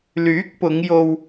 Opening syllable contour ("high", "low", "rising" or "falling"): rising